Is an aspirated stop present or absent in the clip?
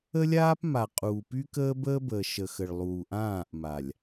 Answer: absent